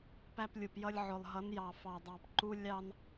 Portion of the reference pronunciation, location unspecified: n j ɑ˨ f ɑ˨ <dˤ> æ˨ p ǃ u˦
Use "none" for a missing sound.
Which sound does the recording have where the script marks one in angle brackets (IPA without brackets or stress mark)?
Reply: dˤ